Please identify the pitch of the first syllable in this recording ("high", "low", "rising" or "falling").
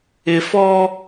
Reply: low